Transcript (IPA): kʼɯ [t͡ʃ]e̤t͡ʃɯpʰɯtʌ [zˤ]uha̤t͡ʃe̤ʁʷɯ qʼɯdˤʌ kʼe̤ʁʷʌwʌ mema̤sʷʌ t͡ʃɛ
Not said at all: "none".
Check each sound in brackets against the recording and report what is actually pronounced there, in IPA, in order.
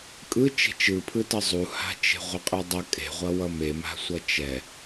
t͡ʃ, zˤ

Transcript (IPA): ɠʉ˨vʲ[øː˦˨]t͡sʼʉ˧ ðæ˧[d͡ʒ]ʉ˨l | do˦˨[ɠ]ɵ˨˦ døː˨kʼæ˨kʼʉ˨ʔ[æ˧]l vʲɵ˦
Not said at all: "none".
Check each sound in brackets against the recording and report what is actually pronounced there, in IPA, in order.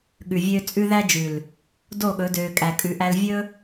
øː˧, d͡ʒ, ɠ, æ˧

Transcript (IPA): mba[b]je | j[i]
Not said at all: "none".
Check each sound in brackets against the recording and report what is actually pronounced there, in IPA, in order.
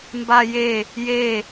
none, e

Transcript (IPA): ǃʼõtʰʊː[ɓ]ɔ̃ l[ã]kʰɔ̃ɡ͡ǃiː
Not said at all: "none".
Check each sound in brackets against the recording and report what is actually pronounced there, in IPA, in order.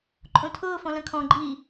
f, ɐ̃

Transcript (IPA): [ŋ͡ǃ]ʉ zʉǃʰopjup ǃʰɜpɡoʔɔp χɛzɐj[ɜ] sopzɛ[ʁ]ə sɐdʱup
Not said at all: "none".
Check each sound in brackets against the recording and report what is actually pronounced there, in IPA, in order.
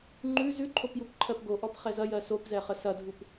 ŋ͡ǃ, ɜ, χ

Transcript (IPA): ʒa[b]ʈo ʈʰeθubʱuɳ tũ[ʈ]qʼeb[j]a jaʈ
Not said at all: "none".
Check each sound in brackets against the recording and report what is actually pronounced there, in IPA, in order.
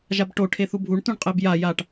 b, ɳ, j

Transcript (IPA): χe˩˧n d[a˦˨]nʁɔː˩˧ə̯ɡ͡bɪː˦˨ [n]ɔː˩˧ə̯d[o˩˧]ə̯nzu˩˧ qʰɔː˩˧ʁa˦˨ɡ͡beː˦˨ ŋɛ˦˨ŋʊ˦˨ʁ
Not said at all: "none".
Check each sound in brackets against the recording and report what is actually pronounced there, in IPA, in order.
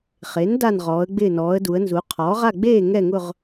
a˦˨, n, u˩˧

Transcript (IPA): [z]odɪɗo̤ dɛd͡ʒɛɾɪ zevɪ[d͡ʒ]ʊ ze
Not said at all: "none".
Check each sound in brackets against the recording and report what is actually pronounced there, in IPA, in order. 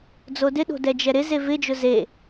d͡z, d͡ʒ

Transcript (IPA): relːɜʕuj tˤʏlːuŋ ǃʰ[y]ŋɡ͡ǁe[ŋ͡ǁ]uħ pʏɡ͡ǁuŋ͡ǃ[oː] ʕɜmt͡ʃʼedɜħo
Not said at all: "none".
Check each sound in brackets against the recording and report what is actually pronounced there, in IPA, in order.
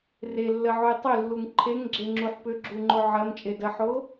e, ŋ͡ǁ, o

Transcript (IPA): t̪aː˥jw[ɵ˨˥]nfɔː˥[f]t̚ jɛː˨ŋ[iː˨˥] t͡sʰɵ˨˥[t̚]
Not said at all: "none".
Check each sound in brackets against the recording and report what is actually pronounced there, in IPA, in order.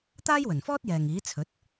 ɵ˨˩, none, iː˨˥, t̚

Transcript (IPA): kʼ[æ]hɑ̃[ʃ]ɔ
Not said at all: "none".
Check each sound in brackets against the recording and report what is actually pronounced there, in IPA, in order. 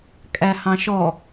æ, ʃ

